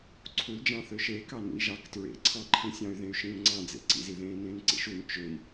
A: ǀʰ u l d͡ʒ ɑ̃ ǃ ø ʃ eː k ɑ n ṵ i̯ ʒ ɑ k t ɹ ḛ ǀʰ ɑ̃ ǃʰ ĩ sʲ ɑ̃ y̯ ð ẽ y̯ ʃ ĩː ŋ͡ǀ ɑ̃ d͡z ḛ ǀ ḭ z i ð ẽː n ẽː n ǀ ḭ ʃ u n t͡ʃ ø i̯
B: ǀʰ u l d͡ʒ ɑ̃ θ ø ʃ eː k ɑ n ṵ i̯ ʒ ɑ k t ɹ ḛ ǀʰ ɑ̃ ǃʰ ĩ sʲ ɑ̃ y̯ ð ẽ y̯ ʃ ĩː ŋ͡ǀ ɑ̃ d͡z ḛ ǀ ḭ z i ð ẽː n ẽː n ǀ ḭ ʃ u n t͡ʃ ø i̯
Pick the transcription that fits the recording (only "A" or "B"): B